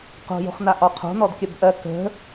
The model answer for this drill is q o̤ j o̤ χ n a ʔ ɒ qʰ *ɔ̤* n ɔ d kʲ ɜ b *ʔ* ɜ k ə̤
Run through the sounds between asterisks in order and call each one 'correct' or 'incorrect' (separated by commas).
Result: incorrect, correct